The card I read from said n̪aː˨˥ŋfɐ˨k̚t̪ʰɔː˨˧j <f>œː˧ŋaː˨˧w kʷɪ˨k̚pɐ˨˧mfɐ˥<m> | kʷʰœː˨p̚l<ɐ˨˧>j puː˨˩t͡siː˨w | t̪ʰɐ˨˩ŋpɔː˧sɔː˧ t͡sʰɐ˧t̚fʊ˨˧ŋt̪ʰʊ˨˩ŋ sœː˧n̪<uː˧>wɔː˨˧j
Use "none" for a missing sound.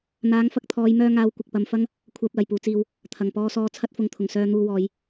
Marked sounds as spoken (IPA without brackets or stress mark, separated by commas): m, ŋ, ɐ˨˩, uː˧